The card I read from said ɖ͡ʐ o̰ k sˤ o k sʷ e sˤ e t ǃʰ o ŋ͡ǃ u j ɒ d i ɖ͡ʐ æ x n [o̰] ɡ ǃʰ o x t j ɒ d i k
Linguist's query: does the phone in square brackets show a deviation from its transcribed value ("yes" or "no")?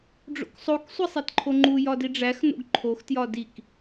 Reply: no